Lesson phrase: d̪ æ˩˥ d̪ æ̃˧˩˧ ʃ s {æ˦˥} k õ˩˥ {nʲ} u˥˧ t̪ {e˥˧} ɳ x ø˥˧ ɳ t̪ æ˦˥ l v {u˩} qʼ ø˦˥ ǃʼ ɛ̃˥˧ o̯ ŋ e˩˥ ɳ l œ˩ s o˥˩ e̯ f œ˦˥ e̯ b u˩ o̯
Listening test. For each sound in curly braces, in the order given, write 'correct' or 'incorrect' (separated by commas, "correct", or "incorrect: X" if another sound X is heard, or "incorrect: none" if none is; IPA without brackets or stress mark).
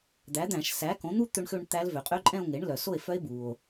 incorrect: æ˩˥, incorrect: n̪, incorrect: ø˥˧, incorrect: ø˩